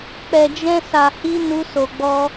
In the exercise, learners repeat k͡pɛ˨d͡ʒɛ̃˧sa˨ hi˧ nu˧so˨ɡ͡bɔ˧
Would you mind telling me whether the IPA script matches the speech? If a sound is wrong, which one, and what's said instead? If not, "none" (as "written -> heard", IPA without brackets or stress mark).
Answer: none